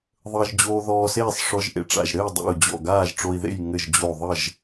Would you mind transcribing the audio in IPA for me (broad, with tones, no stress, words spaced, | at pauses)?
ðˤəː˧ʒd͡ʑoː˧ ðɔː˧seː˥˨sˤ ʂɔ˧ʒʔḛ˧ʈ͡ʂa̰˧˩ʒ ɾɘ˥˨i̯dˤḛ˧˩u̯d͡ʑɔ̰˧˩ ɡaː˥˨ʒʈ͡ʂo˧i̯ðḛ˥˨j ŋɘ˧˩ʒd͡ʑo˧˩ ðˤə˥˨ʒ